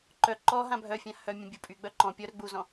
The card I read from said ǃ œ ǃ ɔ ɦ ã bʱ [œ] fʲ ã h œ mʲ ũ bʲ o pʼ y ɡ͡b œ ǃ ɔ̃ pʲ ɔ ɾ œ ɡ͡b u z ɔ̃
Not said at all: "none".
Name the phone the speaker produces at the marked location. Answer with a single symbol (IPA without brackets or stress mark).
œ